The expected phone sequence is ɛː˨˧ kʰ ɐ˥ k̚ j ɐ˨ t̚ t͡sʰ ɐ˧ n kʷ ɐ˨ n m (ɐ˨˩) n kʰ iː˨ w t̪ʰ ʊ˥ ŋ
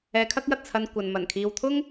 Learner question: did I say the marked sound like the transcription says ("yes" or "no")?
yes